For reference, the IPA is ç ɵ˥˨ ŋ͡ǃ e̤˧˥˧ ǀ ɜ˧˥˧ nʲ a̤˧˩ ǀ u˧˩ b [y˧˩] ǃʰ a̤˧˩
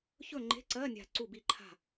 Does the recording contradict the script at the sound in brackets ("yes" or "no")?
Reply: yes